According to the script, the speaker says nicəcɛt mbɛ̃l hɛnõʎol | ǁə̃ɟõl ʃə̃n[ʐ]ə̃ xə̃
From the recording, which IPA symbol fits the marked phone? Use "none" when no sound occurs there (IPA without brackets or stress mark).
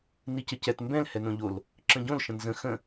z